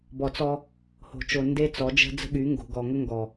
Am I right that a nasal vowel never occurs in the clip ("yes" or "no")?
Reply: yes